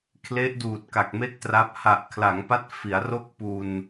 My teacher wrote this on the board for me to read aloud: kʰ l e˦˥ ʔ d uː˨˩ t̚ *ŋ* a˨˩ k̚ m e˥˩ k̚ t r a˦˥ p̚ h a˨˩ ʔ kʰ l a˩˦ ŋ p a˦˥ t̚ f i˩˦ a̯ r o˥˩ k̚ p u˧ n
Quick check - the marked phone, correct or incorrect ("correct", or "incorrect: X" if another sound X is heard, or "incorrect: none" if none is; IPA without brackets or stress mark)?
incorrect: k